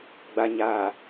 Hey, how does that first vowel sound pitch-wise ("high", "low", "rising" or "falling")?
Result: low